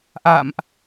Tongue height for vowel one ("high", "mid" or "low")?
low